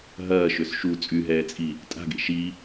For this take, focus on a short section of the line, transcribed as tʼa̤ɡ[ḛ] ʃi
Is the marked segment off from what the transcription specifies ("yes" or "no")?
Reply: no